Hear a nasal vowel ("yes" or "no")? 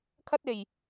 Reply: no